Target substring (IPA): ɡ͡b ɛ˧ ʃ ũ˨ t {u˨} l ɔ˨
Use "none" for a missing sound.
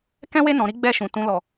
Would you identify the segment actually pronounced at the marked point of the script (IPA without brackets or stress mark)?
ũ˨